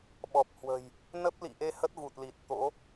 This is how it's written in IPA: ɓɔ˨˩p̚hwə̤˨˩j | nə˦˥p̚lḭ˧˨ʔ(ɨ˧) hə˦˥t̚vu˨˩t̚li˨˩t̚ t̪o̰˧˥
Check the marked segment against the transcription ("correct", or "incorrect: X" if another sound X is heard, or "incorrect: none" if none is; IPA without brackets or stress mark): incorrect: e˧